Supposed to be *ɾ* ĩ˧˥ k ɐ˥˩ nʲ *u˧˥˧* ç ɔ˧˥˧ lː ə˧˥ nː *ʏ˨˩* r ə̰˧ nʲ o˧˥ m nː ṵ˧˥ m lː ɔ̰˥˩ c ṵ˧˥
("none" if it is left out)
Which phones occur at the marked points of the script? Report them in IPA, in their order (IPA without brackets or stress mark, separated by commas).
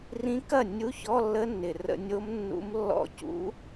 r, u˧˥˧, ɪ˨˩